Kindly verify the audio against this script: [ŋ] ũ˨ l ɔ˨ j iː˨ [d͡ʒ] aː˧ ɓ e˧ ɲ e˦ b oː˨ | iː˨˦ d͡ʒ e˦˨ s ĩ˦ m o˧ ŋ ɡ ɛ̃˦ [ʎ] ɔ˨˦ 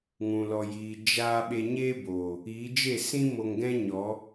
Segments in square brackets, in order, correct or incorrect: correct, correct, incorrect

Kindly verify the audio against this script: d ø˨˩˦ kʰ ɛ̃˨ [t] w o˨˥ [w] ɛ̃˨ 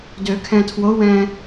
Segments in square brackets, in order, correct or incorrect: incorrect, correct

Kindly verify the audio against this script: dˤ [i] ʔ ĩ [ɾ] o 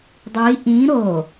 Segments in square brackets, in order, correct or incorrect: correct, correct

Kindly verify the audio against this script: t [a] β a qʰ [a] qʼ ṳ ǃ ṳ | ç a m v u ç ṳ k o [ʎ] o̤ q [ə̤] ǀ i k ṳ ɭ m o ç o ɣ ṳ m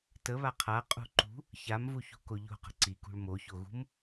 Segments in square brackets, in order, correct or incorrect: incorrect, correct, correct, correct

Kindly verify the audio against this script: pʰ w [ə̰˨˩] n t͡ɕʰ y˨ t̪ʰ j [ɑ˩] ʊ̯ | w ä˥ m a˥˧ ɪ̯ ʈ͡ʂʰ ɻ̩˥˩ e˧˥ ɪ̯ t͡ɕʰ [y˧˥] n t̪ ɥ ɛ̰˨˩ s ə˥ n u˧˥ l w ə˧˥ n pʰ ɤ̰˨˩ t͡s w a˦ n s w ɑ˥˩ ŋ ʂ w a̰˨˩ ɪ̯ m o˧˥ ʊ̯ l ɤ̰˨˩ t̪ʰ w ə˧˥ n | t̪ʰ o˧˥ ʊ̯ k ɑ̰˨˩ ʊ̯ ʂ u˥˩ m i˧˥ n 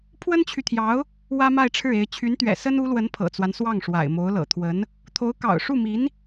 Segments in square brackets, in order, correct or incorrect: incorrect, incorrect, correct

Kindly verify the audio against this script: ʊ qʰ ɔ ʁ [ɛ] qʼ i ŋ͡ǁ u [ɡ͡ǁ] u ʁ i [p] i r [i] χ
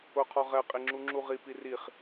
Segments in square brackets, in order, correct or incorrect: correct, incorrect, correct, correct

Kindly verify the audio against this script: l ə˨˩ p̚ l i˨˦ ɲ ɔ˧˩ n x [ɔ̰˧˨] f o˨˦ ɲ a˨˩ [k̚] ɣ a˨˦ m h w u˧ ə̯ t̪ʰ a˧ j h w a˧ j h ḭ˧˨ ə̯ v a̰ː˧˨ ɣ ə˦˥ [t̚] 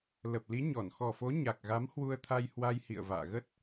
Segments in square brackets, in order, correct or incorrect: incorrect, correct, correct

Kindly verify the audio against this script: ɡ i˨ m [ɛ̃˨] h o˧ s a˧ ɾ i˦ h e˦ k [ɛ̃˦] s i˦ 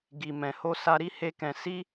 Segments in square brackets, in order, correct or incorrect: correct, incorrect

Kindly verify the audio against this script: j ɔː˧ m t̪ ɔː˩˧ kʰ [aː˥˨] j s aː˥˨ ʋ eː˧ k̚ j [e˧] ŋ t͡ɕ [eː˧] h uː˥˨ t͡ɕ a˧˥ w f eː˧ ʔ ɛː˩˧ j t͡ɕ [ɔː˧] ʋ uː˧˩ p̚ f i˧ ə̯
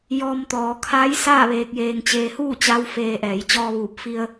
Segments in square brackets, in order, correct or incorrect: incorrect, incorrect, correct, correct

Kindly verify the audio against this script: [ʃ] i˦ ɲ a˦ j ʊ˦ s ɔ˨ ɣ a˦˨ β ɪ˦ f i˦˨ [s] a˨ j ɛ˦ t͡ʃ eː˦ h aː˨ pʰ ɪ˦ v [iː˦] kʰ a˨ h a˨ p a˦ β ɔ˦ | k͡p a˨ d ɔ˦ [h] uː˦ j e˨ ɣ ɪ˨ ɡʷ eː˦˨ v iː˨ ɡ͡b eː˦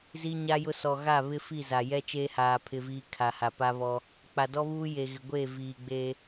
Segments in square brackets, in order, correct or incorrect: incorrect, incorrect, correct, incorrect

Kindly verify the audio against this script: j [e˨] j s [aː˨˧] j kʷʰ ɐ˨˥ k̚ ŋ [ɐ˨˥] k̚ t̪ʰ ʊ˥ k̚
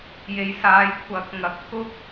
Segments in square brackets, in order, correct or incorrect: correct, correct, correct

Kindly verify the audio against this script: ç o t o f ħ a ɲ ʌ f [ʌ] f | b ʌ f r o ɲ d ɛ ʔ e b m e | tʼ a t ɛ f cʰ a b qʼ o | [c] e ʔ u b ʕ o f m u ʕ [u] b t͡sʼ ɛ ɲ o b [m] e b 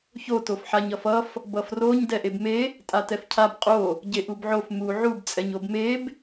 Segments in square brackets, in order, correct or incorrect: correct, incorrect, correct, correct

